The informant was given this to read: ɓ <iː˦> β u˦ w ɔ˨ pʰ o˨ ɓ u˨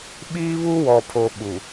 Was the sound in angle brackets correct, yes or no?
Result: yes